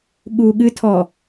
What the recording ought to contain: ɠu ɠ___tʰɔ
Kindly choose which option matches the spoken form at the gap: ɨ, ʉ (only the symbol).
ɨ